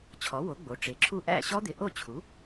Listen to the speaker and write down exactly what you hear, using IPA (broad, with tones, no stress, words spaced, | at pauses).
t͡ɕʰɔ˩˥wo˩˥ ɡ͡bo˩˥ʈ͡ʂe˩˥ǁʰu˥˩ ʔæ̰˥˩ɕɔ˦˥d̪ɪ˩˥ ʔo˥˩t͡ɕʰu˩˥